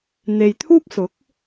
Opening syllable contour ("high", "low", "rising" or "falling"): low